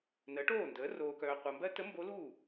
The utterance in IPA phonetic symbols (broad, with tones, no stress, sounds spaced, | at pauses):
n ɜ˩˥ ʈ oː˥˩ n d əː˩˥ r oː˨ k œː˨ qʷ ɜ˨ m b ɜ˥ t ə˧˥ m b o˧˥ l uː˥˩